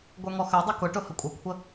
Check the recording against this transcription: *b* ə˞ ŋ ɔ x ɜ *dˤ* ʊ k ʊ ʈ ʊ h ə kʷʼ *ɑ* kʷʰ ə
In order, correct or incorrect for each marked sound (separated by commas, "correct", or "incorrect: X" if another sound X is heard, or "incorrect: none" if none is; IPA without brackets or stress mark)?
incorrect: ɡʷ, correct, incorrect: ə